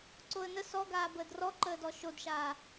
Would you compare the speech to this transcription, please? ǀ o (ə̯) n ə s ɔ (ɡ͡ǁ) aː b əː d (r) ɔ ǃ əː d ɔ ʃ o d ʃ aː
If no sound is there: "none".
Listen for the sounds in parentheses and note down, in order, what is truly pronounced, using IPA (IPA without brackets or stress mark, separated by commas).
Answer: ə̯, ɡ, r